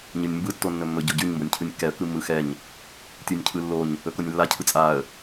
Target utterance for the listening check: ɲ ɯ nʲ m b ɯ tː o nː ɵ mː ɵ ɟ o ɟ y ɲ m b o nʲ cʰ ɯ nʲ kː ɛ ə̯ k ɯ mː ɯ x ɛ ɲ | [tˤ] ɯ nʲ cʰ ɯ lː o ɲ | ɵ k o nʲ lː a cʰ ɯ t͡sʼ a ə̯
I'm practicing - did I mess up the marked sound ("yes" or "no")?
yes